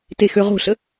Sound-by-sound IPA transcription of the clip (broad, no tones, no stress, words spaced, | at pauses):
texøʁo̤ɬə